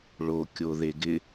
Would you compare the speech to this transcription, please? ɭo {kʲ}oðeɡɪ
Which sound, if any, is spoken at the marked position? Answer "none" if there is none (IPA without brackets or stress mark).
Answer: kʲ